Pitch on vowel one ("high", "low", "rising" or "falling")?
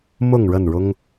falling